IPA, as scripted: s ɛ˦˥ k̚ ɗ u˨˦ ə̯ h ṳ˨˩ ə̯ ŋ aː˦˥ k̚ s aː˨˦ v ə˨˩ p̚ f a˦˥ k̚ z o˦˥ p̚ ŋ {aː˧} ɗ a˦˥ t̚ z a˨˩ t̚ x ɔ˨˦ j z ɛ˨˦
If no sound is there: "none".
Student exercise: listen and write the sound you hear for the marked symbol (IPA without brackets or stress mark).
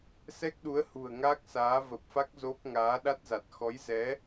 aː˨˦